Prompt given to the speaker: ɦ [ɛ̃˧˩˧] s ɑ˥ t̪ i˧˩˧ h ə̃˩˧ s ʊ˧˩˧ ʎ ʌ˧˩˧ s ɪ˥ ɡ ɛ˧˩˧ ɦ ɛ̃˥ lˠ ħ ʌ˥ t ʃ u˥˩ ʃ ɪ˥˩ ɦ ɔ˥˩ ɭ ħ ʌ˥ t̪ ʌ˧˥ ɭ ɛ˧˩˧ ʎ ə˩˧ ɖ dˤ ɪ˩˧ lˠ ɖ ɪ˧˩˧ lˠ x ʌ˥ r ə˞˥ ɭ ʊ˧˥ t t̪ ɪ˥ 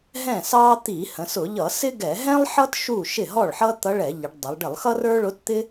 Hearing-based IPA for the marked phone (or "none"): ɛ̃˥˩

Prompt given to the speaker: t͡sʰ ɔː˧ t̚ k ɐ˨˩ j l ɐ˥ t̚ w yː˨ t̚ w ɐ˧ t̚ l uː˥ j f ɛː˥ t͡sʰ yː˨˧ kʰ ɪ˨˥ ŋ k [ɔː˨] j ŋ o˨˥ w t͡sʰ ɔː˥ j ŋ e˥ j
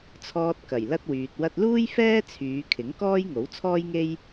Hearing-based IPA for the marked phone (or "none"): ɔː˥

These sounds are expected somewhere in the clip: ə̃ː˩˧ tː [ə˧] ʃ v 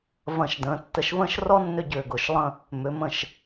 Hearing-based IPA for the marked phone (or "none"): ə˧˩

